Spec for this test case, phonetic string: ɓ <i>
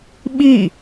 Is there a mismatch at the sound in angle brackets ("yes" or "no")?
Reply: no